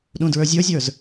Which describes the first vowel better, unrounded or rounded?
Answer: rounded